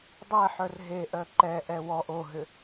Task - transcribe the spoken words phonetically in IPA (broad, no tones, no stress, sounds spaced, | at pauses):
dˤ ɛ ħ œ r ɦ e ʔ œ ǃ ɛ ʔ ɛ w ɔ ʔ o ɦ ʏ